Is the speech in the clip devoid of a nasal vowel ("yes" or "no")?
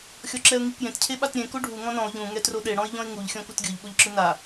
no